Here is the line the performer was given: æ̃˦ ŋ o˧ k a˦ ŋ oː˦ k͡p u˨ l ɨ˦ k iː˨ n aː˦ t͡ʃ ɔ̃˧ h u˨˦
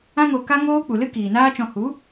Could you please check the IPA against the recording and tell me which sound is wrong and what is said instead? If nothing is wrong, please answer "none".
æ̃˦ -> ã˦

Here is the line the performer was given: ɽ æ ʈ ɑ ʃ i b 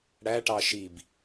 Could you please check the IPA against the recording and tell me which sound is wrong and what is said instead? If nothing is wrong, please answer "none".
none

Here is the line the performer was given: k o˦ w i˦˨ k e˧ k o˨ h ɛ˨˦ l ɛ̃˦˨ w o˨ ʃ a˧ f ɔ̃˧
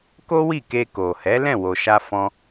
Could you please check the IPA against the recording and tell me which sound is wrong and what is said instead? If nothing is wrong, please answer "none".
none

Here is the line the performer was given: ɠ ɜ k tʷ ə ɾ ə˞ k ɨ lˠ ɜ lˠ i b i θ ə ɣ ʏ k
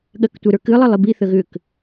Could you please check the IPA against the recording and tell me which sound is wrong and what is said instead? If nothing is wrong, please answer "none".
none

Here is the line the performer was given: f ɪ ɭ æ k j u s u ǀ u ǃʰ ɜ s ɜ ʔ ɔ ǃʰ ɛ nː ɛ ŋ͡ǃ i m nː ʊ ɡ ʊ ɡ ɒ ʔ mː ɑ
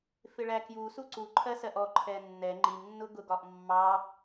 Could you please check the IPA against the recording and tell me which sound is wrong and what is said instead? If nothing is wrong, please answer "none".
none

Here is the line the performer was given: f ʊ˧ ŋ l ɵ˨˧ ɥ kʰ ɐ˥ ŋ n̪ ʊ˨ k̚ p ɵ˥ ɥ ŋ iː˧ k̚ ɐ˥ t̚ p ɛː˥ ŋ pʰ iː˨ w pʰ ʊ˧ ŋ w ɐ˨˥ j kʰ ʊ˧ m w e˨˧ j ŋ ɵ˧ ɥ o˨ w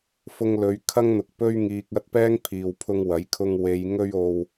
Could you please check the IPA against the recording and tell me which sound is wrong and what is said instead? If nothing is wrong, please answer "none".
m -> ŋ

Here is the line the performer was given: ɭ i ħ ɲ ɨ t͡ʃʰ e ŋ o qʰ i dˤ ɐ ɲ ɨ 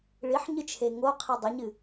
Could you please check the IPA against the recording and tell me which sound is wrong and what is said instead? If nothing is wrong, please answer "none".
none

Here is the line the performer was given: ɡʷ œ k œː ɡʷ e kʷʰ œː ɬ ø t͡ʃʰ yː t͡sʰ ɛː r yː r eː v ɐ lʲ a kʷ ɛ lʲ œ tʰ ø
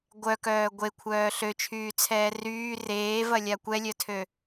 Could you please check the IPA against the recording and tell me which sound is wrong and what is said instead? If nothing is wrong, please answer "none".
none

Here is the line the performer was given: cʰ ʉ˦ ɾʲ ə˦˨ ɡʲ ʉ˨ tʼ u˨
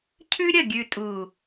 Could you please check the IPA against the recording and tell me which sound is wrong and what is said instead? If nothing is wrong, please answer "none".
none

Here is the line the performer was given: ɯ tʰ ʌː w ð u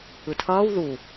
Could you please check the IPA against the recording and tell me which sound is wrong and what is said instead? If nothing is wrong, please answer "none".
none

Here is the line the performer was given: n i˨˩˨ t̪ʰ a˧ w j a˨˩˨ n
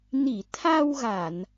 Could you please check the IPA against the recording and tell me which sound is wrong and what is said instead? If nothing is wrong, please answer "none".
j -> ɣ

